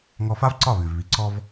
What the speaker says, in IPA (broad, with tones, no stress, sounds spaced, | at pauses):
ŋ ɔ˧ f a˥ v ǀ ɒ˥˩ β ʉ˩ v β i˩ ǀ ɔ˧ v